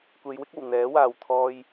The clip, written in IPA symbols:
kʷe˨˧jwɪ˥k̚o˨˩w n̪ɛː˨˥waː˨w t̪ʰɔː˧j

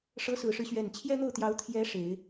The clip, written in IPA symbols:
ʂɤ˧˥sɹ̩˨˩ʂɻ̩˦ɕɥɛ˨˩n t͡ɕʰjɛ˥n̪o˥˩ʊ̯t̪jɑ˧˥ʊ̯ t̪ʰjɛ˧˥ ʂe˨˩˦ɪ̯

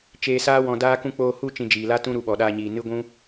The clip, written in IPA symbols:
t͡ʃeː˧saː˦wɔ̃˧ daː˦kũ˦ k͡poː˧hu˦˨ t͡ʃĩ˧d͡ʒiː˨la˦ tũ˦ ɾu˧ɓɔ˨ɗaː˧ɲiː˨ nɨ˦ ɡʷũ˦

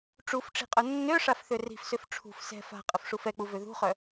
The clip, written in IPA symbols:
ʈ͡ʂufʈ͡ʂi̤qʼœ nːøʂafθø ri̤fsøf ʈ͡ʂʰṳf sɛ̤ fa̤qʼəfʂuf ɛk͡puvø ðṳχœ

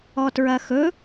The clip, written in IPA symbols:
ɔtɹɐxɵ

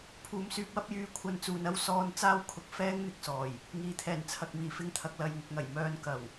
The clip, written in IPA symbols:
pʰuː˨msyː˧p̚wɐ˥p̚jyː˧ kʷʰɐ˧nt͡suː˨nɐ˥w sɔː˧n t͡saː˥wkʰʊ˧k̚ fɛː˥ŋn̪ɪ˧k̚sɔː˨˩j | ŋiː˨t̪ʰɛː˨˩n t͡sʰɐ˨k̚miː˨˩fɪ˧ŋt̪ʰɐ˨k̚ lɐ˨jŋʊ˨k̚ŋɐ˨˩j mœː˧nkɐ˨˩w

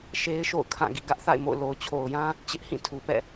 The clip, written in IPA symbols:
ʃe˦ɪ̯ʃo̰˦˨ʊ̯kʰã˦˨ ɡḭ˦˨ ɡä˦ʔθa̰˦˨ɪ̯mo̰˦˨ʊ̯ lo˨ʊ̯t͡ɕʰo˨ʊ̯jã˦ | t͡ɕɪ˦ʔhĩ˦˨tʰu˨pɛ̰˦˨

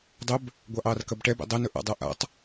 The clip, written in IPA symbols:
dˤɵb | ɡʷɑʔɑːrkɐbʈɛb ḛdˤɛnɵ ʔa̰dˤɜ ʔa̰tˤ

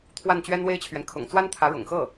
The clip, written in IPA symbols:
t̪ʰwa˥˩nt͡ɕɥɛ˥nwe˥ɪ̯t͡ɕʰɥɛ˨n kʰʊ̰˨˩ŋt͡swa˥nt̪ʰä˧˥ ɻʊ̰˨˩ŋxɤ˥˩

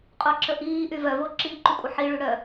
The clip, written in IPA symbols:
qʼoǁəʔiːʔy vœvo ǁi ǃykʷʼəħiɭy ɽœ

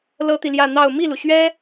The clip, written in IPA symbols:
lɤ˥t̪i˨ljä˥˧ n̪ɑ˥˧ʊ̯ mi˥˩lu˩ɕɥɛ˥

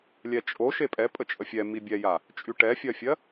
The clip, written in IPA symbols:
lʲɛt͡ʃʼo ʃepʼɛ pʼət͡ʃʼəfʲɛ mibʲɛja | t͡ʃʼyʈɛfʲɜfʲɜ

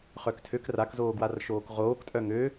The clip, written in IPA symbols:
χœktʰøk rakzoː ɡwarʃoːkʁoːktʼœ ŋø

